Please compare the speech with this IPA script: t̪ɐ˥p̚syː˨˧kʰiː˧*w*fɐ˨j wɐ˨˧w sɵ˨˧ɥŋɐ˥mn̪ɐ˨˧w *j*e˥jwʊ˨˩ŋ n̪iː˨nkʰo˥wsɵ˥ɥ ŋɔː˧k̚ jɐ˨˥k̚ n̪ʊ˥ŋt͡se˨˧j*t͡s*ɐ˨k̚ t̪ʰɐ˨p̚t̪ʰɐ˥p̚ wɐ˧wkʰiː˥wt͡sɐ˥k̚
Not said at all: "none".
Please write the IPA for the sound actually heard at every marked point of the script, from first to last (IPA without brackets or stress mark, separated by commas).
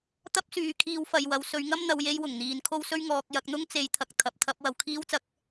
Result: w, j, t̪ʰ